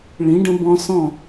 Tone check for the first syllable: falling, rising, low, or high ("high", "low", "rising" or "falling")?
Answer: rising